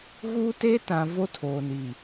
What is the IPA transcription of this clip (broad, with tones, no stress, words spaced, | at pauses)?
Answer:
ɣuː˦te˦tã˨ vo˦tʰoː˨ni˨